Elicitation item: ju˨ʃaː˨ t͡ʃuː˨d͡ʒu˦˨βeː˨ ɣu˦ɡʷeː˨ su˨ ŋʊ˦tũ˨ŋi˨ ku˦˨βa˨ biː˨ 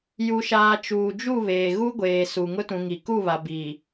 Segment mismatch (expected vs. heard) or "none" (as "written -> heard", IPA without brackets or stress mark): none